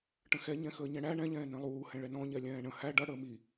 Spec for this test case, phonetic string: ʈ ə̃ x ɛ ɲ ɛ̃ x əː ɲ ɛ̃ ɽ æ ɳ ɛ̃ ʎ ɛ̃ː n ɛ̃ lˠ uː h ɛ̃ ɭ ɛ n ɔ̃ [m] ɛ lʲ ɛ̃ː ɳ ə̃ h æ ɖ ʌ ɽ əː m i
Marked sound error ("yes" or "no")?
yes